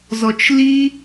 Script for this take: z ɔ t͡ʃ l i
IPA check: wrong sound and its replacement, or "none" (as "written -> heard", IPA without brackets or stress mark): none